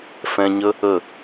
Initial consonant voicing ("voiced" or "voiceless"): voiceless